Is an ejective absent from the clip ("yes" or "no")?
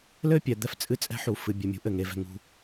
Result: no